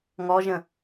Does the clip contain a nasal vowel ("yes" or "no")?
yes